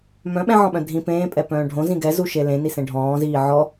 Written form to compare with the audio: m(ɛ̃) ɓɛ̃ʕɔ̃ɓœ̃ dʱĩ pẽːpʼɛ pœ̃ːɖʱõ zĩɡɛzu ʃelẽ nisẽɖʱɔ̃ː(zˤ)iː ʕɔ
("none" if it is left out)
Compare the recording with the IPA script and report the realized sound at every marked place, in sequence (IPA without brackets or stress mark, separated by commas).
œ̃, z